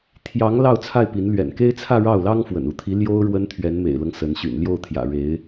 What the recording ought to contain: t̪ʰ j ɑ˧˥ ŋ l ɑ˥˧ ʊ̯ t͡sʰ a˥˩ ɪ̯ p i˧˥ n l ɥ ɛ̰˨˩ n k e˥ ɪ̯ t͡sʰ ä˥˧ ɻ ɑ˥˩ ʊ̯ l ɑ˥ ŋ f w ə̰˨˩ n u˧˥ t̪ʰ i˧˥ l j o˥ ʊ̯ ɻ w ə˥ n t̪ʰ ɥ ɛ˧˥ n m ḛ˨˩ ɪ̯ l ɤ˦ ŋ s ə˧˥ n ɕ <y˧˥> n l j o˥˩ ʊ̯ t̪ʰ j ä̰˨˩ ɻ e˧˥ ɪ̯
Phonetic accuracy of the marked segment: incorrect: y̰˨˩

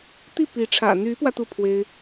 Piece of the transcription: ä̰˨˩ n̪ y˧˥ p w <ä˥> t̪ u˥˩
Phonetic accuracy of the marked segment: incorrect: ä˧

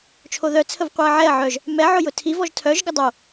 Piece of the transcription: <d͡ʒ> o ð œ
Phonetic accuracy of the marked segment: incorrect: t͡ʃʰ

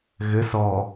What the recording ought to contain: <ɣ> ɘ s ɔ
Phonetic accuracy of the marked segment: correct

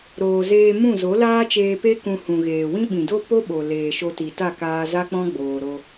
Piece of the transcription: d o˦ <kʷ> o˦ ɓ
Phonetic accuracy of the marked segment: incorrect: p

